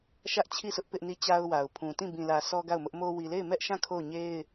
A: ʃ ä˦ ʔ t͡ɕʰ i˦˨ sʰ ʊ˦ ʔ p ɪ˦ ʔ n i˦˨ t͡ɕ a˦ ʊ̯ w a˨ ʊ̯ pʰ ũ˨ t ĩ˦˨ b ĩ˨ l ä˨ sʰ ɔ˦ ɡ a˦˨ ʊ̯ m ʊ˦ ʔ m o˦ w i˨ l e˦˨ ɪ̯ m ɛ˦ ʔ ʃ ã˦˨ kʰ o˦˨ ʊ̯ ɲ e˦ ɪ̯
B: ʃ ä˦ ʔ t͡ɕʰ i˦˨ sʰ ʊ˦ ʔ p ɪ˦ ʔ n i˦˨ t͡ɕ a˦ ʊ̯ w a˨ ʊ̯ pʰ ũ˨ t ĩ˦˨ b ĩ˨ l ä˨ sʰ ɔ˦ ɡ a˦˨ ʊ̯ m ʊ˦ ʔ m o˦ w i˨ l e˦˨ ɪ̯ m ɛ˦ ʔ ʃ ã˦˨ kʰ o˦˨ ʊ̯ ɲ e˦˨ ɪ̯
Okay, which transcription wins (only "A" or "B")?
A